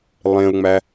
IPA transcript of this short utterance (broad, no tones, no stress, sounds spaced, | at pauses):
lˠ ẽ ʊ̯ ŋ͡m æ